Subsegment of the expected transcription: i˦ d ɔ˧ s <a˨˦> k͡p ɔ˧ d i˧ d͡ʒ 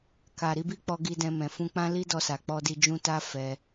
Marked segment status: incorrect: a˨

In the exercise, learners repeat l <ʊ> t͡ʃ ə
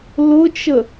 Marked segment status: correct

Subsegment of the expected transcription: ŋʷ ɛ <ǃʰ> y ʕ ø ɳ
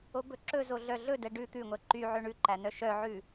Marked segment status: incorrect: ǃ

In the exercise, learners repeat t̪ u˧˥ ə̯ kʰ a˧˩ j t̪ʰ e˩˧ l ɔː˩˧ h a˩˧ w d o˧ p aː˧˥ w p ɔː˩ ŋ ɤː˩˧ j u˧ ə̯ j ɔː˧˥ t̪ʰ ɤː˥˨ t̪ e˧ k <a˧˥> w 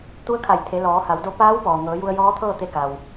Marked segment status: incorrect: a˩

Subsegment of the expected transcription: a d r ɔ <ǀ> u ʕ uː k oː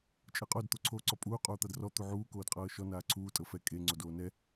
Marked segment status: incorrect: t̪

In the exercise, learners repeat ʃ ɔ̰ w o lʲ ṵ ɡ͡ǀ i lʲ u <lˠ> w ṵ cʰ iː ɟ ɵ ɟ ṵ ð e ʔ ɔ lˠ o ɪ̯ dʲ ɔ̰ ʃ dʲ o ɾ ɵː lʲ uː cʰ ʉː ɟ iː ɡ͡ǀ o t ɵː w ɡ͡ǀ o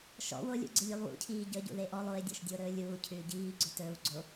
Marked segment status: correct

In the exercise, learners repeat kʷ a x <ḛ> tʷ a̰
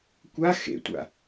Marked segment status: correct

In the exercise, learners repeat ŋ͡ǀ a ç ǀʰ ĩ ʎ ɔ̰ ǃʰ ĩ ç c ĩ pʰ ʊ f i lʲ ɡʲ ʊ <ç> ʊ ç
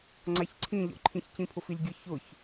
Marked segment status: correct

